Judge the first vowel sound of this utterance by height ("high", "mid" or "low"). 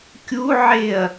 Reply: high